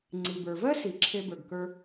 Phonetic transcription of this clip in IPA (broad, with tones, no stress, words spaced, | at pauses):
ŋ͡ǀi˩bə˞˩vɜ˥ si˩ ǁʰe˥bə˞˩ɡkə˞˥